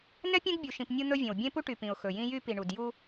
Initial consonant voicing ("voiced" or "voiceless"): voiced